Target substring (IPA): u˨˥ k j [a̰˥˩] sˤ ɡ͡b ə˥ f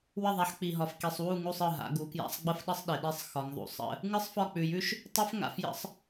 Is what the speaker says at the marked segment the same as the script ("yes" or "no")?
yes